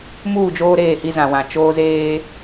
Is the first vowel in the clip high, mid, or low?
high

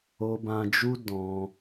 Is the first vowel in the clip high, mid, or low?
mid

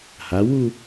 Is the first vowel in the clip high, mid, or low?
low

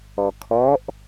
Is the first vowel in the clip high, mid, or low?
mid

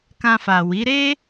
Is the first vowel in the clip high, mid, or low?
low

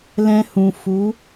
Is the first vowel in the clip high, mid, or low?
mid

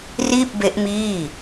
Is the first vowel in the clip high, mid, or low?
high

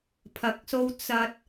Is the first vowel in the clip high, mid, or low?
low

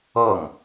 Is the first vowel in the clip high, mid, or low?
mid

